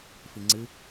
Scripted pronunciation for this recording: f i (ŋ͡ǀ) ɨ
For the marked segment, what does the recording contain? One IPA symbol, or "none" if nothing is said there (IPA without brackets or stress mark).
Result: ŋ͡ǀ